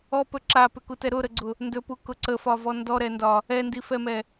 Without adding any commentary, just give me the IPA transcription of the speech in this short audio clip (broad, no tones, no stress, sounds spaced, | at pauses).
ɔ p ɵ ǁ a p ʏ k u t ɛ ɾ ʊ ɾ ə ɡ͡ǀ ʊ | n d ɵ p u k ʊ ǀ ə f ɒ v ɔ n d ɔ ɾ ɛ n d ɒ | ɛ n d i f ɛ m ɛ